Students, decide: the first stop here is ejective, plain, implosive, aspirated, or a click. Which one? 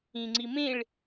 click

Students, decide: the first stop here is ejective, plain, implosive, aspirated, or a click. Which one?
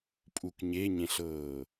ejective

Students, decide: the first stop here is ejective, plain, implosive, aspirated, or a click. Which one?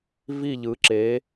click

